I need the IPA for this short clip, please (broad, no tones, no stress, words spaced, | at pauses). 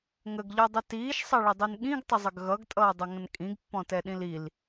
ŋəɡʎɔdˤə tiːʃsˤʌɭədˤin ɠĩɡtˤəzˤəɡ ɣʌɡtʼʌːdˤəŋə̃n kʼĩɡpːɔ̃tɛɗĩl il